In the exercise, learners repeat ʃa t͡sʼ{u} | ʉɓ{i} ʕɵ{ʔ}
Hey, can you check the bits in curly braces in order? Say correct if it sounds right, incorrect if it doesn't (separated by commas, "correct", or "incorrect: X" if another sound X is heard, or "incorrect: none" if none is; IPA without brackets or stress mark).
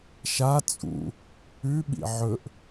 incorrect: ṵ, incorrect: ḭ, correct